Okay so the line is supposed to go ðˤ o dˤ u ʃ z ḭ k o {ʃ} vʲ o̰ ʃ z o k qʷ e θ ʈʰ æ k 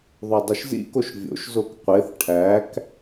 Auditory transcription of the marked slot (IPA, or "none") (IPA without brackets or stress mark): ʃ